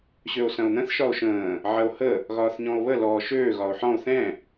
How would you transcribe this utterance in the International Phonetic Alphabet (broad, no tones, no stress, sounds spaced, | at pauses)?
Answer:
ɕ ø o̯ s ɐ̃ o̯ n̪ ə̃ θ ʃ ɒ o̯ ʃ ə̃ː | ʕ ɐ o̯ h ə | ɣ ɒː θ ɲ ɔ̃ o̯ β ə l ɔː ʃ øː ɣ ɒ o̯ ħ ɔ̃ o̯ θ ɛ̃